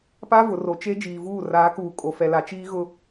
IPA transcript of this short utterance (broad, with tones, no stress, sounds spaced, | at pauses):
p a˦ v ʊ˨ r o˨ t͡ʃ e˦ d͡ʒ iː˨ v uː˦˨ r aː˨˦ k uː˨ kʼ o˨ f ɛ˨ l a˨ t͡ʃ iː˦ ɣ ʊ˦